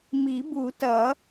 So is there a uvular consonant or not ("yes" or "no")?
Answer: no